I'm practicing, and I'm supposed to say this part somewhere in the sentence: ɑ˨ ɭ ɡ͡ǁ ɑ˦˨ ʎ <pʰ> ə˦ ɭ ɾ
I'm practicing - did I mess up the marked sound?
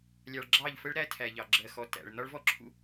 yes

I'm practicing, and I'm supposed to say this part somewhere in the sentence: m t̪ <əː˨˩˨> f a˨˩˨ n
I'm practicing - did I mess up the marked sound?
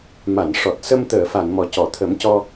no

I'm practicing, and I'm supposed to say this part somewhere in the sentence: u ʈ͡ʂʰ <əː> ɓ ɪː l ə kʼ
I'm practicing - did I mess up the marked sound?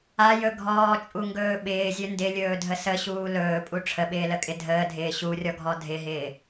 yes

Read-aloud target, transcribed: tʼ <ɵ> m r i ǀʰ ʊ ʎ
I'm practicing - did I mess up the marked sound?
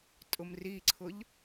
yes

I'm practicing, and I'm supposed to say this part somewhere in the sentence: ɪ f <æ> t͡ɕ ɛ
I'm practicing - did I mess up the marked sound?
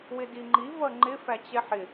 no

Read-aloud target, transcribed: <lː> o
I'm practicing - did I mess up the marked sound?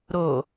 yes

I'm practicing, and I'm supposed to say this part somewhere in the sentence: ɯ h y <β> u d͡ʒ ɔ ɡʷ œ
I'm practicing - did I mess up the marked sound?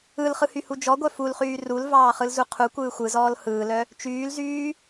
yes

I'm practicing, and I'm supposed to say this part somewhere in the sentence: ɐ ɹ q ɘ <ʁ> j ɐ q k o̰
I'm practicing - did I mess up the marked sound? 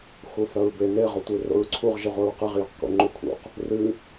no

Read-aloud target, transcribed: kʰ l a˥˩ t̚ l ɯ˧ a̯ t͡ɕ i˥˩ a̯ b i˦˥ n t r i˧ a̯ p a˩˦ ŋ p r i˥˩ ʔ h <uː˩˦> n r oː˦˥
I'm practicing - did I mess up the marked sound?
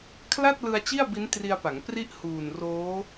yes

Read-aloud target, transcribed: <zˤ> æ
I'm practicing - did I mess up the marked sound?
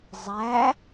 no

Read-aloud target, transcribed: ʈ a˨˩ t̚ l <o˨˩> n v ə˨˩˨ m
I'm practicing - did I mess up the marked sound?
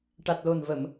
no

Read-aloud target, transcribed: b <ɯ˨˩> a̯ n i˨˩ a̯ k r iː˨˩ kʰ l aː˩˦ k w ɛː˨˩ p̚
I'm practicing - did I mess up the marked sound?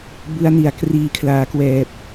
yes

